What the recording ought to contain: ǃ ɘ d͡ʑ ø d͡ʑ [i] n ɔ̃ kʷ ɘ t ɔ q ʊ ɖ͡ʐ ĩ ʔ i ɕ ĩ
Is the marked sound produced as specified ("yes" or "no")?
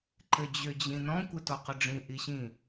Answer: no